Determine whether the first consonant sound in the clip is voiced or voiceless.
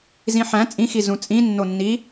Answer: voiced